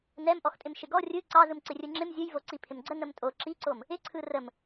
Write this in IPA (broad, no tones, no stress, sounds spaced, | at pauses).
n ɛ m ʔ ɔ x tʼ ɪ m ʃ ɪ ɡ ɔ rʲ ɯ ǀ ɑ z ɯ m ǀ ɪ rʲ ɯ ŋ͡ǁ ɪ m zʲ ɯ j v o ǀ i pʰ ɪ m ɡ͡ǀ ə n ə m tʼ o ǁ i ǀ o m | ɪ ǀʰ ɯ r ə m